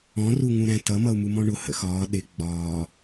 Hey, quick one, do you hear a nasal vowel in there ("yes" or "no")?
yes